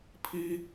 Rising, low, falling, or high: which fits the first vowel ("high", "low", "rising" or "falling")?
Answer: high